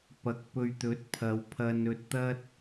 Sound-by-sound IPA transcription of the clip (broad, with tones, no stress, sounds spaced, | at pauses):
p ɐ˨˥ k̚ p ɵ˧ ɥ t̪ ɵ˨˥ t̚ pʰ ɐ˨˧ w pʰ ɐ˧ n ɵ˧ t̚ t̪ ɐ˥ t̚